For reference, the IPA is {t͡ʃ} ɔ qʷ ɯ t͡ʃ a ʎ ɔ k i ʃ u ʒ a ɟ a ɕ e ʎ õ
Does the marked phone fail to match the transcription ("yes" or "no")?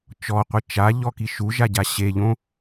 no